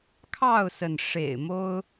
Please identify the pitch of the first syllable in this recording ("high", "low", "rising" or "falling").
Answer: falling